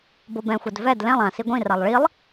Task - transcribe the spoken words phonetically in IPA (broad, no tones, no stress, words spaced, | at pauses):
bobɛ̃xʷɛd vɛd lɛ̃lˠ ã siɡʷĩralˠ ɭilˠ